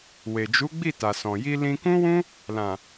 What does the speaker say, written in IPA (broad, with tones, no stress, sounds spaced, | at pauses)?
w e˨ d͡ʒ u˨˦ ɡ͡b i˦˨ t a˨ s ɔ̃˨ j i˧ l ĩ˧ k ũ˦ w ũ˦ | l ã˨